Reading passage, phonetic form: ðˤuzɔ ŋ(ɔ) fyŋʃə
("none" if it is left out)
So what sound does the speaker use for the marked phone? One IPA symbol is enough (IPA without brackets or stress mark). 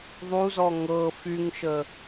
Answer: ɤ